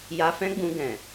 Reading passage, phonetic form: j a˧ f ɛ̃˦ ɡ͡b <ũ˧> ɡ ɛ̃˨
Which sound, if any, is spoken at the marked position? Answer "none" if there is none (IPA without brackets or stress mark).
ũ˧